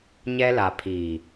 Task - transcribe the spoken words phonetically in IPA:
ɲɛ˦la˨ pʰiː˨

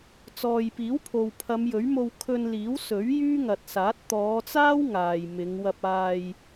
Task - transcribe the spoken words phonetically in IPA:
t͡sɔː˨jpiː˨˥wpʰo˨w pʰɐ˨˧mjɵ˨˥ɥmo˧w kʰɵ˧nliː˨˥wsɵ˨˥ɥ jyː˥ŋɐ˨t̚saː˨˥t̚ t̪ɔː˨˧t͡saː˥w ŋaː˨jmɪ˨˧ŋ wɐ˧p̚aː˧j

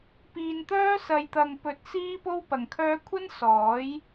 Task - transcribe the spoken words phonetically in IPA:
piː˨nt̪œː˥ sɐ˨jt̪ɐ˨ŋ pɵ˨˥t̚ siː˥po˥wpɐ˨ŋkʰœː˥ kʷʰɐ˥n sɔː˨˥j

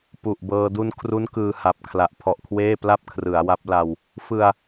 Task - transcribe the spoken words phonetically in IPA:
pu˨˩ʔbɤː˧ du˧nkʰru˦˥n kɯː˧ha˨˩p̚kʰla˨˩ʔ pʰɔ˨˩ʔkʰweː˥˩pla˥˩p̚ kʰrɯ˩˦a̯wa˦˥p̚ la˧w | fɯ˧a̯

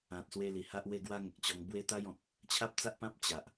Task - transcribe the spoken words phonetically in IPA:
ã˨t̚swe˧ li˨˩ha˦ʔwe˥˧ɡwa˦ ŋə˨k̚t͡ɕɔ˧ŋ bwe˦t̪a˦j ɔ̃˨k̚ | t͡ɕʰa˦p̚ t͡sa˦ʔpã˦p̚ t͡ɕa˨ʔ

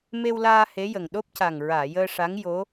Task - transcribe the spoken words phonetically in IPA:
me˧wlaː˧ he˧˥jə˨˩ŋ ɗo˦˥p̚ca˨˩ŋ ɹaː˨˩˨jəː˧ ʂa˧˥ŋ jo˧˥

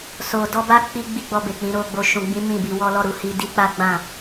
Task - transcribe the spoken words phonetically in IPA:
so˨dɔ˧ ba˧ k͡pi˦ɡ͡bi˦ɡ͡bɔ˧be˨ k͡pĩ˨˦ɾo˧ɡ͡bo˧ ʃũ˨ɡ͡bĩ˨˦ mĩ˦˨bi˧wɔ˦ lɔ˦˨ɾu˨˦hi˧ di˦k͡pa˦ɡ͡bã˦˨

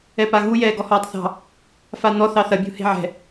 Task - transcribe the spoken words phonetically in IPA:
ɛpaɣu jɛːɡɔhɔːtˤθɑ̤ | fan̪ɔ θɑθɐ bʲṳhe̤ʕɛ̤

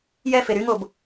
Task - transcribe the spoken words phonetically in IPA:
jɛfe ɾyŋob

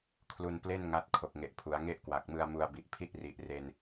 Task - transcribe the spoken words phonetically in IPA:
kʰlu˧nple˥˩n ŋa˦˥t̚ kʰo˨˩k̚ŋe˨˩ʔpʰu˩˦a̯ ŋe˥˩ʔkwa˨˩k̚mɯ˧a̯mu˧a̯ bi˨˩ʔpʰi˥˩t̚ri˨˩ʔ re˧n

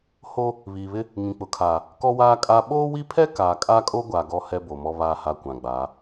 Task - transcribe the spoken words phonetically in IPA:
ho˦ | βiː˨βɪ˦ | ŋĩ˨k͡pʊ˨kʰaː˨ | kɔ˦waː˦kʼa˦ ɓoː˦wi˦pʰɛ˦ kaː˨kʼa˦kʼo˦ɡʷa˨ ɡɔ˦ hɛ˦bo˨mɔ˦ βaː˦ha˦˨kʷã˨ɡ͡baː˨˦

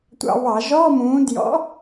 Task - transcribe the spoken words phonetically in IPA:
tʷɑ̰˧˩˧βɑ˧˩˧ʒɔː˧˥˧mũː˨˥ djɔ̰˨˥

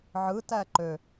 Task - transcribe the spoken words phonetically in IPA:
ʕɯtæ ǃø

